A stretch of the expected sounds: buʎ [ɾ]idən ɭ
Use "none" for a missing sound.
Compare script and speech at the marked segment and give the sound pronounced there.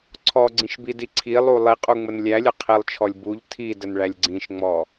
tʰ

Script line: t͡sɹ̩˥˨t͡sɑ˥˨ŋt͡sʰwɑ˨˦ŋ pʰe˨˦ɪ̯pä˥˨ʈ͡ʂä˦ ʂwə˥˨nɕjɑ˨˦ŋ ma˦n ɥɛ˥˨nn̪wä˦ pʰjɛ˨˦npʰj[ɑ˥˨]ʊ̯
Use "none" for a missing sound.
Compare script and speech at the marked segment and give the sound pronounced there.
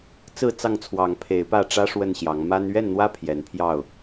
ɑ˥˨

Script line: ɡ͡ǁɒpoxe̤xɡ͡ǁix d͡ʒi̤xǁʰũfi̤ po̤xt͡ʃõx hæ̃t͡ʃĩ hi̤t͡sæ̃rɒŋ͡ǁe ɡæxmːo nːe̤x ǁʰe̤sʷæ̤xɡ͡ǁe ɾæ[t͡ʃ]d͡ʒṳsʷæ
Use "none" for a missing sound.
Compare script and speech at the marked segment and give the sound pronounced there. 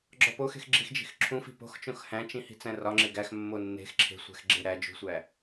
none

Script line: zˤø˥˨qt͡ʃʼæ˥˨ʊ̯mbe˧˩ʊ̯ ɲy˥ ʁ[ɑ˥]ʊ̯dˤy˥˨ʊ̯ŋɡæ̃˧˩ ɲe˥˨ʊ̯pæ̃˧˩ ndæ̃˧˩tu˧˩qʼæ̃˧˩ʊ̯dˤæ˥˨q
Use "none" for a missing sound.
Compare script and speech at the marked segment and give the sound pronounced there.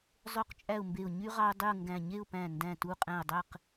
ɑ˥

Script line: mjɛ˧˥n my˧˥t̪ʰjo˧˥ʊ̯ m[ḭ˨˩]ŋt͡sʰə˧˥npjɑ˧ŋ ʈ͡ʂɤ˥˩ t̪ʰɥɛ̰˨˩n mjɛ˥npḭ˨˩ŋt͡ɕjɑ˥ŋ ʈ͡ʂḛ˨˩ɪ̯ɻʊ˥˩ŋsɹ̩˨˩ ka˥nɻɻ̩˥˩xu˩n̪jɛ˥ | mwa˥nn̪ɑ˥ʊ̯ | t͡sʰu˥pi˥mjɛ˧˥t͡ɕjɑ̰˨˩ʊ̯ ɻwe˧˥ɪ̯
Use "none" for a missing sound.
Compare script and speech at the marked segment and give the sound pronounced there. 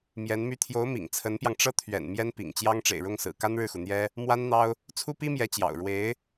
ḭ˨˩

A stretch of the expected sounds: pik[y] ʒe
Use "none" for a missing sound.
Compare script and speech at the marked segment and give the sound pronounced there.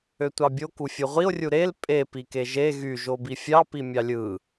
e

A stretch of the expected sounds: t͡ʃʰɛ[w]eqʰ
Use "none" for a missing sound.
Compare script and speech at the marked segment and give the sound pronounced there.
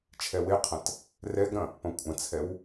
w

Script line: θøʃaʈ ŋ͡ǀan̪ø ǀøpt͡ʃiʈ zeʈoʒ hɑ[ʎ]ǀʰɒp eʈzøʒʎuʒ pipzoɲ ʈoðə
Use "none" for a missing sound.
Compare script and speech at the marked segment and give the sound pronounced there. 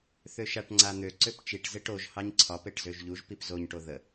ɲ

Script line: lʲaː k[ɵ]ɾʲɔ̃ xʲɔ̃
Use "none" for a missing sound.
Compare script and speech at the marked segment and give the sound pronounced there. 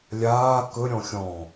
ɵ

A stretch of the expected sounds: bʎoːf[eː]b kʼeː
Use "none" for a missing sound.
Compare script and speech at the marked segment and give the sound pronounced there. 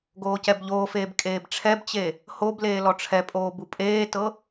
eː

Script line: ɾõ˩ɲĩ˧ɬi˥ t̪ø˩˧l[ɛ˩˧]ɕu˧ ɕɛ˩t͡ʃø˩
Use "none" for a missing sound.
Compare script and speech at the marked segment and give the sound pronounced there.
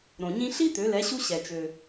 ɛ˩˧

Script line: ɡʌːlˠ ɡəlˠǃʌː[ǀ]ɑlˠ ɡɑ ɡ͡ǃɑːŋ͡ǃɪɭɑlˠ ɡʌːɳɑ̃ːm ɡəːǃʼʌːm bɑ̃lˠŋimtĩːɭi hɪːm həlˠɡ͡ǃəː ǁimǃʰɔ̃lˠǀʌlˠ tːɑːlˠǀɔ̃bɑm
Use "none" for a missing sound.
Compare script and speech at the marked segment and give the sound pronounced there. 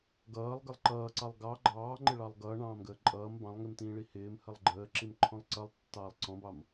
ǀ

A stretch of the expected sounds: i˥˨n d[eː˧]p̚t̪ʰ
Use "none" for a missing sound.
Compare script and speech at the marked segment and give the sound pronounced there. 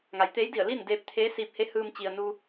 eː˧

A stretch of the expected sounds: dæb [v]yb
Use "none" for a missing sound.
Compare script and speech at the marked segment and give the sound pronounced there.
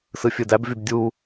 v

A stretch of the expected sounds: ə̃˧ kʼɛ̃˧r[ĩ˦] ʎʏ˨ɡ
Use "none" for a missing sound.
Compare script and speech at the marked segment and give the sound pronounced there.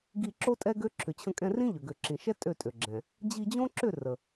ĩ˦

